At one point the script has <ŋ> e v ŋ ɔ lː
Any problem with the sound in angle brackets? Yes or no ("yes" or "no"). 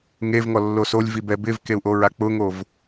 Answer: no